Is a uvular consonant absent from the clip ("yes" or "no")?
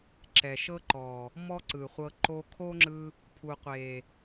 no